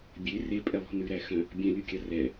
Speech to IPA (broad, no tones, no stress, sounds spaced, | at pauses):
bʲ e r e pʼ ɛ lˠ ṳ n ʉ ɾ æ x œ̃ | bʲ œ̃ lʲ u kʲ ɑ r ɛ